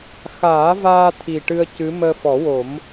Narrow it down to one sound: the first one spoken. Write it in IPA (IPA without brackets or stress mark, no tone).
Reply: x